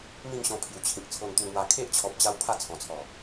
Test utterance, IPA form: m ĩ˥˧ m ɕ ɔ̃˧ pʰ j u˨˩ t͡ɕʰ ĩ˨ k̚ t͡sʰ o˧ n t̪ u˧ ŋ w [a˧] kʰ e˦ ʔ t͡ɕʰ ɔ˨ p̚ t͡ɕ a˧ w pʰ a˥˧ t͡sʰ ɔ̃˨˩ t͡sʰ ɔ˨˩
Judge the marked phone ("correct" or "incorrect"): correct